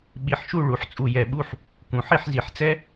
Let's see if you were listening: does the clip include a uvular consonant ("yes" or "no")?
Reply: no